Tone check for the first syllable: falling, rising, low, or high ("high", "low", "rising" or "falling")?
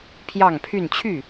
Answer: falling